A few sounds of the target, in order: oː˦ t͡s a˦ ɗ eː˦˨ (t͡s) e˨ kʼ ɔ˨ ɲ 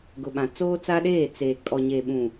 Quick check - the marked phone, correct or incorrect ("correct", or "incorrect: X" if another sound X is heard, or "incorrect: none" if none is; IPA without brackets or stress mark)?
correct